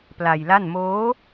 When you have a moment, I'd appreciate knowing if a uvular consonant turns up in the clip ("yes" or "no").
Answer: no